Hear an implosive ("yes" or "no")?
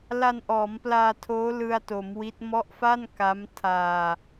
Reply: no